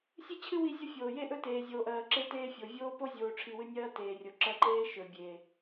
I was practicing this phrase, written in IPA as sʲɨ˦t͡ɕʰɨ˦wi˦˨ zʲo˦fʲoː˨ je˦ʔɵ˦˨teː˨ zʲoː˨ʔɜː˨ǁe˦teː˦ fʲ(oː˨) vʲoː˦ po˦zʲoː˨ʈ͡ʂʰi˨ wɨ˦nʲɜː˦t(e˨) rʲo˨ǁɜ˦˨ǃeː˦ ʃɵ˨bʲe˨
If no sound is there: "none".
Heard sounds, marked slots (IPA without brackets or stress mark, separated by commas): o˨, eː˨